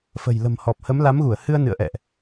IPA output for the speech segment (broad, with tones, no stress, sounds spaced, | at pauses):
f ə̤˨˩ j l ə̤˨˩ m h ɔ˨˩ p̚ h ə˨˦ m l a˨˦ m ɣ u˧˩ ə̯ h ɨ˧ ə̯ n ɨ̰˧˨ ə̯ ʔ ɛ̰˧˨ ʔ